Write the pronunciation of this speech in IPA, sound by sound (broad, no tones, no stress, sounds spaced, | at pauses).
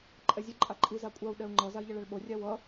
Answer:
ǃʼ ɛ zʲ ɯ ǃʼ a ǃʼ i z a kʷʼ a u̯ ɗ ɛ u̯ ŋ͡ǃ ʌ z a i̯ ʎ ʌ ɭ a ɭ ɓ o rʲ a w ʌ